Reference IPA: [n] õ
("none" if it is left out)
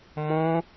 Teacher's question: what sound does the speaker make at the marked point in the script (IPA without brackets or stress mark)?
m